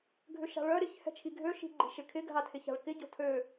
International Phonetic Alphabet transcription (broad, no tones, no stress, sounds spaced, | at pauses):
ɡʱ ʏ ʃ a̤ ɭ œ ɾ ɪ ç h ɛ̤ t͡ʃʰ i ɡʱ ø ʃ i̤ ɡ͡ǃ i̤ ʃ ɪ kʰ ɪ ɡʱ a tʰ ɪ ç a̤ ɭ k ɪ ɟ o̤ tʰ ø